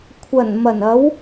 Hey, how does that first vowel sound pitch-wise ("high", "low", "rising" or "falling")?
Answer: low